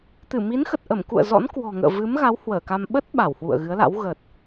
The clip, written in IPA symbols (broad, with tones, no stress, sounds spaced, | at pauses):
t̪ ɨ˧˩ m i˨˦ n x ə˨˩ t̚ ʔ ə˧˩ m k ṵ˧˨ ə̯ z ɔ̰˧˥ n k w ɔ̤˨˩ ŋ ə̰ː˧˨ v ɨ˨˦ m ɣ a˨˦ w h w əː˧˩ k a˧ m ɓ ə˦˥ t̚ ɓ a˧˩ w h w ṵ˧˨ ə̯ ɣ ɨ˨˦ ə̯ l a̰˧˥ w ɣ ə˨˩ t̚